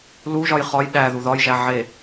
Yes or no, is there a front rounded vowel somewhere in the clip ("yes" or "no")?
no